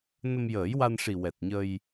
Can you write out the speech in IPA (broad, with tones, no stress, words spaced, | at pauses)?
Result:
nə˧mjəː˨˩˦jwa˧nʂi˨˩ wɛ˨˩t̚ɲə˧j